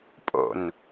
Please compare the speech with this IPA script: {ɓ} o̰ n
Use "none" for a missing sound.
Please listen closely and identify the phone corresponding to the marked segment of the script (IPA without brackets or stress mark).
pʼ